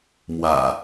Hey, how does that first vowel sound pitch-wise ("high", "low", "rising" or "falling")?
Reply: low